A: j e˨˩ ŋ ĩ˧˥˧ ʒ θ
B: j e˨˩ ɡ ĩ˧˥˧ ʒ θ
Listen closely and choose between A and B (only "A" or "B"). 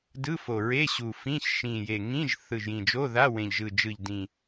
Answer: A